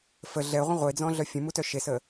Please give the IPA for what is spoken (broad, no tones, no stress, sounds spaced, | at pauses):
f ə ɮ ɛ ʁʷ ə̃ ʁʷ e d͡z ɔ̃ ɮ œ fʲ ə̃ m u t œ ʃ e s ə